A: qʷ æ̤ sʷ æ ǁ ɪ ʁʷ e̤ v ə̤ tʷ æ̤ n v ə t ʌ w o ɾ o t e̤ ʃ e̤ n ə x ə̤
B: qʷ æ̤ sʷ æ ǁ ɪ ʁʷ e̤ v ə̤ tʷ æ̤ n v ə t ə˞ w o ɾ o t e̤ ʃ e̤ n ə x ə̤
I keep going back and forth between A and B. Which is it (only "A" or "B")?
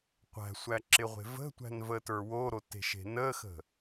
B